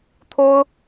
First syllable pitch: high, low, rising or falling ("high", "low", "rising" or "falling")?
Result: high